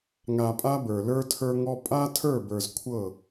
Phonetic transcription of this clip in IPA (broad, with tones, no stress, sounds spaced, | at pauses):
ŋ a˨ pʼ a˦ b ə˞˨ l ə˞˦ tʰ ə˞˦ ŋ ɔ˦ pʼ a˦ tʰ ə˞˦˨ b ə˞˨ z kʷʰ ɤ˦˨